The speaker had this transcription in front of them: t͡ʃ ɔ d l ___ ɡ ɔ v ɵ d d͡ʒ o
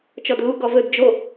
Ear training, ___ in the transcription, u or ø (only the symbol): u